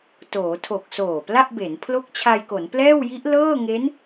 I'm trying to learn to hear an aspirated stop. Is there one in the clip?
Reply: yes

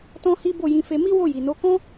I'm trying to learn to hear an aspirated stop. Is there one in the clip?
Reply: no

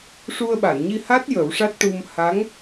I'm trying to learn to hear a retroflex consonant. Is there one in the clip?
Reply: yes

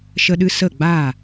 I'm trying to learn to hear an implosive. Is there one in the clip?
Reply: yes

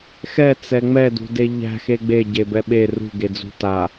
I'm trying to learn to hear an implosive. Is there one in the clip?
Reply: yes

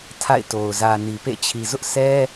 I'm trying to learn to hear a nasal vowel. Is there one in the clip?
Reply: no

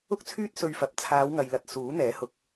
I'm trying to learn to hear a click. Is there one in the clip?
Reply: no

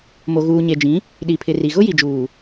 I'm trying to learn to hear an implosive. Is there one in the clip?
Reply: yes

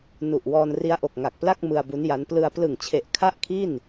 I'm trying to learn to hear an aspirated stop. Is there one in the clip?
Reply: yes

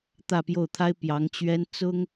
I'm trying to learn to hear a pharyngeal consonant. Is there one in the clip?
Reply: no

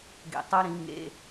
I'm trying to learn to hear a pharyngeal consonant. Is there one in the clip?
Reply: no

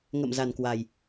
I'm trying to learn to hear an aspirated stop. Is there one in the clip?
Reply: no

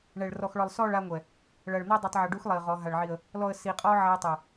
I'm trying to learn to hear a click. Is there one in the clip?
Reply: no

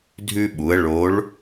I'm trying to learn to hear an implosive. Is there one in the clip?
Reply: yes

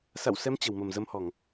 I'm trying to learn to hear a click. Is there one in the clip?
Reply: no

